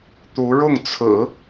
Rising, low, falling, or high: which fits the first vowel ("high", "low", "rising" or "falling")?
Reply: rising